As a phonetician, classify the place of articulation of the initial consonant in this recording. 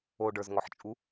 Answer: retroflex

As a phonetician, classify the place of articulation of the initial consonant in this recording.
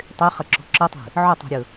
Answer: alveolar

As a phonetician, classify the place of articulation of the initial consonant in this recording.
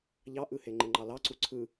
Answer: palatal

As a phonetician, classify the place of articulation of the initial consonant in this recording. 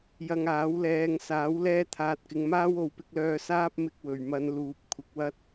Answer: palatal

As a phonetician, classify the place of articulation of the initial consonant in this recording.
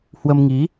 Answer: glottal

